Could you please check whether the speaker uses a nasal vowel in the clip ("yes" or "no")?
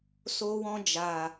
yes